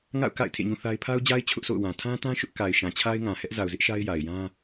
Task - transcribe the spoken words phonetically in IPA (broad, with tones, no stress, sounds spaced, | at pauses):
ŋ a̰˦˨ ʊ̯ k a̰˦˨ ɪ̯ tʰ ḛ˦˨ ɲ ũ˦ θ a˦ ɪ̯ pʰ a˦ ʊ̯ d͡ʑ a˦ ɪ̯ t͡ɕʰ ʊ˦ ʔ sʰ o̰˦˨ ʊ̯ w ã˨ tʰ ã˦ t ã˦ ʃ ʊ˦ ʔ k a˨ ɪ̯ ʃ ã˨ t͡ɕʰ a˦ ɪ̯ ŋ ã˨ h ɛ˦ ʔ z a˨ ʊ̯ z ɪ˦ ʔ ʃ a˦ ɪ̯ j a˨ ɪ̯ j ã˦